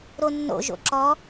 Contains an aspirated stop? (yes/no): no